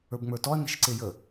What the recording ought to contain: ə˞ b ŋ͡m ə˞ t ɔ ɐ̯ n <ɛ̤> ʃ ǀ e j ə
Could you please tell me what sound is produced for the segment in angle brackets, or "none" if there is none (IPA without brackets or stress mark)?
ɛ̤